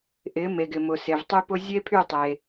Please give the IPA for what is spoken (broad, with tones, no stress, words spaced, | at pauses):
ʔɪ˩˥ me˩ɡɪ˩mʊ˩ se˩vtˤy˥pʊ˥ zʲe˥pʰy˥˩tˤe˩